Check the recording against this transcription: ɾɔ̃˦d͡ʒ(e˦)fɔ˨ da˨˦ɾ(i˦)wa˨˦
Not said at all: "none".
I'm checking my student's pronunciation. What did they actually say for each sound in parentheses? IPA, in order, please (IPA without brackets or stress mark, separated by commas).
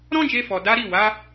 e˧, i˦˨